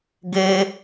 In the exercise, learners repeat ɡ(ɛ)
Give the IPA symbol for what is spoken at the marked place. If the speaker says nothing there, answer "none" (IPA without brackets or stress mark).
e